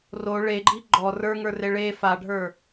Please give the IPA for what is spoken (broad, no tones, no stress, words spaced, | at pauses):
ro ɭeɡ͡ǃi ɡ͡ǃɔ rə˞ŋə˞re ɭe faɖʱə˞